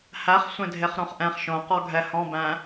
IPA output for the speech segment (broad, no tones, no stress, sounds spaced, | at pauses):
h æ χ sʷ ẽ dʱ e χ ɾ õ χ ʔ ɛ̃ χ ʃ õ q ɔ ɡʱ ɛ h ɔ̃ b æ̃